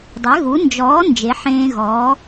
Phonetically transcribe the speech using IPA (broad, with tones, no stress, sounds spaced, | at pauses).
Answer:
dˤ ɛ˨˥ ɣ u˨˥ n d͡ʒ ɔː˨˥ n d͡ʒ e˨˥ ħ ẽː˦ ɣ ɔː˨˥